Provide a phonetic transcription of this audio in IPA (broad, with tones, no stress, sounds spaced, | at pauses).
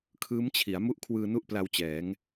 kʰ ɯː˦˥ m t͡ɕʰ i˩˦ a̯ m u˦˥ ʔ kʰ w ɯː˧ n u˦˥ ʔ p l a˧ w t͡ɕ ɛː˩˦ ŋ